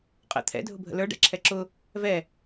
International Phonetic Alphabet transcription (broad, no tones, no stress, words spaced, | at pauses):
qʼə̰ t̪ʰɛ̰ dʱʊbʱə̰lə˞ ɖɛ̰ǁʰɛǁʊ | vɛ